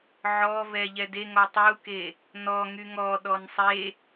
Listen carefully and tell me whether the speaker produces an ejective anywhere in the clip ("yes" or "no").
no